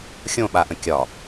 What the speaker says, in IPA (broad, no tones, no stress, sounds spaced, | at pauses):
xʲ õ ɓ a ʔ ə̃ kʲ ɒ